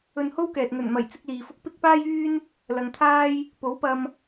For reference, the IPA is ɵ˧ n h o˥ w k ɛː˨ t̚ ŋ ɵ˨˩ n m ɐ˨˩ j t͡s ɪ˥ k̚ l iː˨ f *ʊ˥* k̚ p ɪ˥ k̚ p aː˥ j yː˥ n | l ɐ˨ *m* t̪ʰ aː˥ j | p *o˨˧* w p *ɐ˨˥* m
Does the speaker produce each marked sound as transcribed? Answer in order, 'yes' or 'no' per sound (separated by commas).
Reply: yes, no, no, no